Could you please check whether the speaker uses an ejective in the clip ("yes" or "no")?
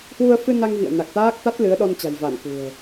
no